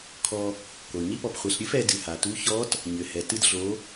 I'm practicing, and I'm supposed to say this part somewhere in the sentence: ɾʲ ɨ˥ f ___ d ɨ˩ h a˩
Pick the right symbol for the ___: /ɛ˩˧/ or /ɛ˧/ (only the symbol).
ɛ˩˧